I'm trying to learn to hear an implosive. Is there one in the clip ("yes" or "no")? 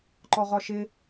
no